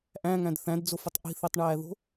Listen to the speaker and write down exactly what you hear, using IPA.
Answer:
ʔæ̃ŋæ̃d θæ̃dd͡zofətˤ ʔi̤θitˤɳæːðo̤

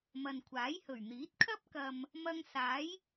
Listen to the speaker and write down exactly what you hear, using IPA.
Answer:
mɐ˨nkʷʰaː˨˥jhɵ˨˩ɥn̪iː˨˥t̚ kʰɐ˥p̚kɐ˨m | mɐ˧ŋsaː˨˥j

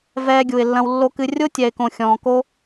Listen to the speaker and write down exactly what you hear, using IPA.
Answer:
vɛː˧ɡʲu˨ɪ̯lːɐ̃˧w lːo˧kɨ˧ rʲo˦tʲɛ˨ɪ̯kõ˨ xʲɔ̃ː˨ko˦

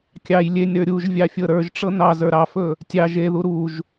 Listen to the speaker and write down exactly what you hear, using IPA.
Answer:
kʲɑj lʲenʲɾə˞ ɾʲuʒ vʲɑfʲɤɾə˞ʒʈ͡ʂɤ nɑ zə˞ɾɑfɵ | tʲɑ ʒeðu ɾuʒ

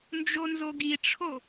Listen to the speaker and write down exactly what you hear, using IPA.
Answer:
nd͡ʒonzoɡiʈ͡ʂʰo

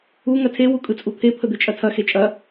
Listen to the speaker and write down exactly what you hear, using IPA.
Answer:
u ŋɐtʰe wukʼɯt͡sʼut̪ʰe pʰəd̪et͡ʃʼɐtʰɐ xet͡ʃʼɐ

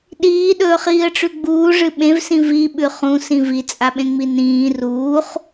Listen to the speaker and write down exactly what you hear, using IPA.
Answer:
ɗiːɗɵːχiːə̯ʈ͡ʂʉ ɡ͡buːʐɨ ɓẽvsĩ viɓʉ χũsĩ vit͡sʼaɓẽŋ͡mi nĩː ruːχ

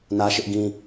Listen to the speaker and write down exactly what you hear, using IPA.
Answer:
nä˦ʃɪ˦ʔɡĩ˦

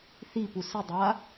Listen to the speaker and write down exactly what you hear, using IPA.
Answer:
θipu sɯdˤa

